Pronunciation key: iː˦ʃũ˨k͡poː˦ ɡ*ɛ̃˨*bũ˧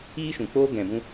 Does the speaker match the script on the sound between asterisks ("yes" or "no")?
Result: yes